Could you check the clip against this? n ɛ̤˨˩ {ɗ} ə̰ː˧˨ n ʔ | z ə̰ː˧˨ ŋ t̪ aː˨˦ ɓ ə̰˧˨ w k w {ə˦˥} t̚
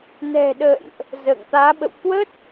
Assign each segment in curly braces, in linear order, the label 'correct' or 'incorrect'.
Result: correct, correct

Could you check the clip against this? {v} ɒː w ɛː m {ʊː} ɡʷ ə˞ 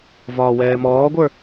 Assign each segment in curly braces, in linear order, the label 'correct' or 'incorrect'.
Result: correct, incorrect

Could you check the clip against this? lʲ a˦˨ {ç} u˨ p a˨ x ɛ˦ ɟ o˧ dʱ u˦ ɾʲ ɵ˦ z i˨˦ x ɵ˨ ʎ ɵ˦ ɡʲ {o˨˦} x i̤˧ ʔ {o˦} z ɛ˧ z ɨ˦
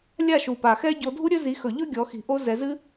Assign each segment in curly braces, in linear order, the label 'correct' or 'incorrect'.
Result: incorrect, incorrect, correct

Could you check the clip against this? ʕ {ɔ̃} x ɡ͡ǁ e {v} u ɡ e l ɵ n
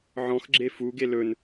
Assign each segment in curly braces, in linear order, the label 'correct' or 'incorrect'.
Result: correct, incorrect

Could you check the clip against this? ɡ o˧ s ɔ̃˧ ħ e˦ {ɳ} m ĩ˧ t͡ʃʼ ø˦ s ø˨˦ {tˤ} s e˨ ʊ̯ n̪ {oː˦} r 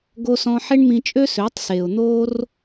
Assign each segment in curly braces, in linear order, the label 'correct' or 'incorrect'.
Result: correct, correct, correct

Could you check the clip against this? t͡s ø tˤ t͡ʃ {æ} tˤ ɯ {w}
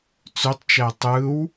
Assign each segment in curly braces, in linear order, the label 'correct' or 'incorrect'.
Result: correct, correct

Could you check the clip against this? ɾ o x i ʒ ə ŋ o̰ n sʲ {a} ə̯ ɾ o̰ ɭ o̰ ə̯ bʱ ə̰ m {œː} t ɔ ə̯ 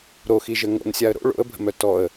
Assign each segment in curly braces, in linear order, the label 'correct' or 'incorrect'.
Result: correct, incorrect

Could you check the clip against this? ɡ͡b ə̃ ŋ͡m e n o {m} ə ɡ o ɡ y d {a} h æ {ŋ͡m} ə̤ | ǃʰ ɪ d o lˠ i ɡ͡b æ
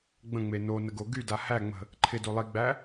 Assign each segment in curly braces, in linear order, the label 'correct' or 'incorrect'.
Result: incorrect, correct, correct

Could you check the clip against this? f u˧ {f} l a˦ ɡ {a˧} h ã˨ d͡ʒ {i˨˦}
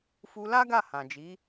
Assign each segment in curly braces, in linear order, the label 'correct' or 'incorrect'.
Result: incorrect, incorrect, correct

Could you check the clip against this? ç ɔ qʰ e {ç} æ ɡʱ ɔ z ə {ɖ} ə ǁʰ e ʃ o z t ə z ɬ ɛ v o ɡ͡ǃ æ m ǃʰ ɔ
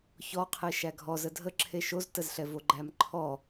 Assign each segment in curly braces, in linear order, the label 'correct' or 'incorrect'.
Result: incorrect, incorrect

